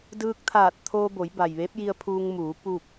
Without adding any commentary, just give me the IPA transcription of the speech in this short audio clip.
d ɯː˧ k̚ t̪ʰ aː˧˩ t̚ t̪ʰ oː˧ b o˩˧ j b a˩ j ʋ e˧˥ p̚ j i˧ ə̯ pʰ uː˧ ŋ m uː˩˧ p uː˥˨ k̚

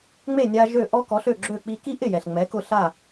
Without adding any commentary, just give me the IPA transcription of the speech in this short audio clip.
ŋ͡m e˥˩ nʲ a˧ ʒ ø˥˩ ʔ ɔ˥ k ɔ˩˥ ɬ ø˥˩ ɡ͡ǁ ø˥˩ k͡p i˧ k i˥ ʔ ɪ˥˩ j ɛ˩ ɬ ŋ͡m ɛ˩˥ k ʊ˥˩ ɬ a˥˩

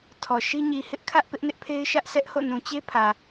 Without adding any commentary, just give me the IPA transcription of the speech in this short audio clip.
tʰ ɔ˨ ʃ i˦ ɲ i˨ h ɪ˦ ʔ kʰ ä˦ ʔ p ɪ˦ ʔ n ɪ˦ ʔ pʰ e˦ ɪ̯ ʃ ä˦ ʔ s ɛ˦ ʔ h o̰˦˨ n ũ˨ t͡ɕ e˦ pʰ ä˨

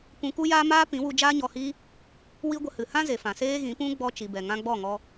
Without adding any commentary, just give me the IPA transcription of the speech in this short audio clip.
kʷ ũ˧ k u˦ j aː˦ m aː˦ p ĩ˨˦ w u˧ d͡ʒ aː˦ ɲ ɔ˧ h iː˦ | w i˦ ɡʷ ə˧ h ɨ˨ h ã˦ z e˨ f ã˨ s eː˦ ɣ ĩ˨˦ p ũ˦ ɡ͡b ɔ˧ t͡ʃ i˨ b ɛ˨ ŋ ã˧ ɡ͡b ɔ˦˨ ŋ ɔ˧

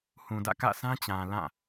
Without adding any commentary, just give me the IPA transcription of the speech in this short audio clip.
h ũ˨ d ä̰˦˨ k ä̰˦˨ s ã˦ t͡ɕ ã˨ l ã˦˨

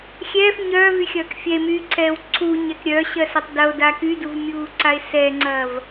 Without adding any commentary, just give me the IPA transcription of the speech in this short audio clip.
xʲ ɛː f ɲ œː v y xʲ ɐː k fʲ ɛ e̯ m yː ǀʰ ɛː w ǀʰ u ɲ ɛ k ɾʲ œ ɕ ɜ s ɐ tˤ d ɐ o̯ d a k y d u v mʲ uː ǀ a e̯ s ɛ ŋ͡ǀ ɐː v

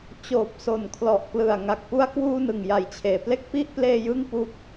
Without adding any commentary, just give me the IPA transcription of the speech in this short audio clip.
t͡ɕ oː˨˩ p̚ s o˨˩ n kʰ l ɔ˨˩ ʔ k l ɯ˨˩ a̯ ŋ a˨˩ k̚ p u˧ a̯ k w uː˧ n ɯ˨˩ ŋ j a˨˩ j t͡ɕʰ eː˩˦ p l e˥˩ k̚ p i˥˩ ʔ p l eː˧ j ɯ˥˩ ŋ p u˦˥ k̚

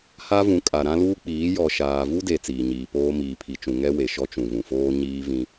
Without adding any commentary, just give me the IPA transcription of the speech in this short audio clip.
h a˦ v ũ˨˦ kʼ a˨ ɾ ã˦ l uː˦ k͡p iː˨˦ j ɔ˨ ʃ aː˨ v u˦ d e˨ t͡s iː˨ ɲ iː˨ p oː˦ m iː˨ pʰ i˨ t͡ʃ ũ˨ ŋ ɛ˦ w e˨ ʃ ɔ˦ t͡ʃ ũ˨ v ũ˨ f oː˦ ɲ iː˦ v ĩ˦

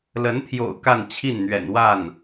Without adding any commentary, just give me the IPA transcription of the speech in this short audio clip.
l ə˧˥ n t̪ʰ j o̰˨˩ ʊ̯ k a˥˧ n t͡ɕʰ i˥˩ n n̪ ɥ ɛ̰˨˩ n w a˥˩ n

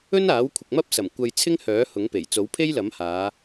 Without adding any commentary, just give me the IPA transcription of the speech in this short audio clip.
ɵ˥ n aː˨˥ w kʷʰ ɪ˨ k̚ m ɐ˥ p̚ s ɐ˨˩ m kʷ ɐ˧ j t͡sʰ ɪ˥ ŋ h œː˨˥ h ʊ˨˥ ŋ p e˨˩ j t͡s o˨˥ w pʰ e˥ j l ɐ˨˥ m h aː˨˧

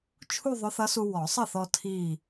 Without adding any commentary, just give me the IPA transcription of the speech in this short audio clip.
t͡ʃʰ u˥˧ ðˤ ʊ˧˥ θ ʌ˧˥ s u˧ w ɔ˨˩˦ sˤ ə˥˩ θ ɔ˧ tʰ iː˧˩

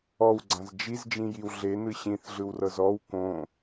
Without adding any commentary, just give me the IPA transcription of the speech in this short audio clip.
ɔ w ɡ͡ǀ ã z d͡ʒ i z d͡ʒ ĩ j i w ɮ e n ɯ ɕ ĩ θ ɮ ɯ w r ɤ z ɔ w k õ

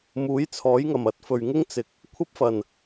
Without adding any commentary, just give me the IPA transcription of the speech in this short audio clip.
m uː˨˥ j t͡sʰ ɔː˨˥ j ŋ ɐ˨˩ m ɐ˨˥ t̚ f ɵ˨ ɥ ŋ ɪ˥ ŋ t͡s ɪ˨˥ k̚ | kʷʰ ɐ˥ p̚ f ɐ˨˩ n

